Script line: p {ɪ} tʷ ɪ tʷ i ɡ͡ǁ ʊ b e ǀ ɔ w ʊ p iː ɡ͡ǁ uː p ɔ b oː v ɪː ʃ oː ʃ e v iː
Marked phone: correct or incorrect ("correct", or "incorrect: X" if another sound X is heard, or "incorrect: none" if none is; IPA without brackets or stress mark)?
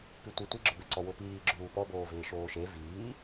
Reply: incorrect: i